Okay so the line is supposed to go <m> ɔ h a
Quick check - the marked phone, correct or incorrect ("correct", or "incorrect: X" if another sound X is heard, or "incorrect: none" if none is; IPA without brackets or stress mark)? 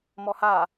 correct